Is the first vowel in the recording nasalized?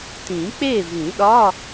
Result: yes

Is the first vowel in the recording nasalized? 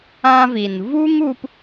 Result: yes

